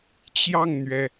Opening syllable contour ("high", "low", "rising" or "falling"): falling